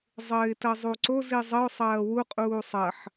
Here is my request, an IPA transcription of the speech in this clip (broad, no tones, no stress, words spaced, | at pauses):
zˤɘːɪ̯tɐzˤuǀo zizˤɘʊ̯ sˤɐːwu qʼuːsˤɐħ